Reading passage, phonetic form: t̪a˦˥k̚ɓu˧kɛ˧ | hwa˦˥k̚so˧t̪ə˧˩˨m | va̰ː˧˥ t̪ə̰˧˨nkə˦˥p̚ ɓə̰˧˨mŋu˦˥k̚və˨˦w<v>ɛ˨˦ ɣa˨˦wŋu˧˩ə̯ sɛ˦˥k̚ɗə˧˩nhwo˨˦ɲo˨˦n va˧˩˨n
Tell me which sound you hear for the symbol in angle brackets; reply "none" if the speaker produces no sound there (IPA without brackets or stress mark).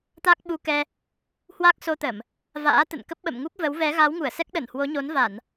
v